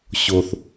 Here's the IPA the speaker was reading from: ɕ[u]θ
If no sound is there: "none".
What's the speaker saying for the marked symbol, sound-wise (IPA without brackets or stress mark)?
o